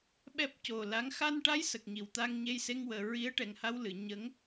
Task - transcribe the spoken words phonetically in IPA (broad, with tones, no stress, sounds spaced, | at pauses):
ɓ ɛ˦˥ p̚ c o˨˩ l a˧˥ ŋ x a˧ n ʈ a˧˥ j s ə˨˩ k̚ ɲ i˨˩˨ w t̪ a˧ ŋ ɲ e˧ j s e˧ ŋ w əː˨˩ ɹ i˧˥ ə̯ ʈ ɛ˨˩ ŋ h a˧ w l ɨ˨˩˨ ɲ ə˧˥ ŋ